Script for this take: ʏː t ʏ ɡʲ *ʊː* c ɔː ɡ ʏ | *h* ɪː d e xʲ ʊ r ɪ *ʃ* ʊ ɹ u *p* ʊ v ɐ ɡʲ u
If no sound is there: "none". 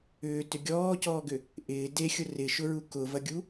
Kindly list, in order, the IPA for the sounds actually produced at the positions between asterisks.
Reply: ɔː, ʔ, ʃ, k

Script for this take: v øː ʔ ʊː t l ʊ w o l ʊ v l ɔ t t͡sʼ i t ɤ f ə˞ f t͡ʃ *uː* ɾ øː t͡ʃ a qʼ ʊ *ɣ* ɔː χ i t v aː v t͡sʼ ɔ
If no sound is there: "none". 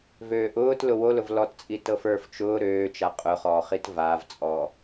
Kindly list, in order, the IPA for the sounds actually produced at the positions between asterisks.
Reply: ʊː, χ

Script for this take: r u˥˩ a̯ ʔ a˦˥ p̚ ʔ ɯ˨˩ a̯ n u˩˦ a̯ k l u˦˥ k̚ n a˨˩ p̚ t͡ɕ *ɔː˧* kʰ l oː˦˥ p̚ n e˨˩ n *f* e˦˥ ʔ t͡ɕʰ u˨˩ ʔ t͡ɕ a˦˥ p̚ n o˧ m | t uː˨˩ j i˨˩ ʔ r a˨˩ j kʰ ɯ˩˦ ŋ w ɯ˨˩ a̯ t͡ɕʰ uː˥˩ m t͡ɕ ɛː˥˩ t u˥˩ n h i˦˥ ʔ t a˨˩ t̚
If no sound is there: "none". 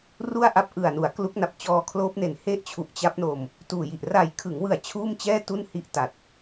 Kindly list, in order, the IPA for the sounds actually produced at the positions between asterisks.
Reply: ɔː˧, h

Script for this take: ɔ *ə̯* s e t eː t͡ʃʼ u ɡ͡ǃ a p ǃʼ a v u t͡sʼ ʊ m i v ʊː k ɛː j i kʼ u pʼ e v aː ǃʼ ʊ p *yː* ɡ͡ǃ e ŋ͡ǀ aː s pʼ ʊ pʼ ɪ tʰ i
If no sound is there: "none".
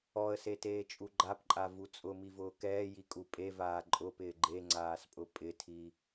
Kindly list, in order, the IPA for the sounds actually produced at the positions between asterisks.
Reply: ə̯, ɪː

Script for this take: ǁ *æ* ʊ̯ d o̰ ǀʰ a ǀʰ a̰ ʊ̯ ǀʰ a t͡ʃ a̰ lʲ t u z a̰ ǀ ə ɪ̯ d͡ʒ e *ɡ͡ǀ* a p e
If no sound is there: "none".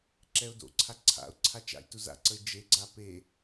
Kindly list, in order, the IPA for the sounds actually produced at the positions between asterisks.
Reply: ɛ, ɡ͡ǀ

